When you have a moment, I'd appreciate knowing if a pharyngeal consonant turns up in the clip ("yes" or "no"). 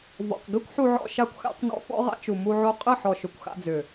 yes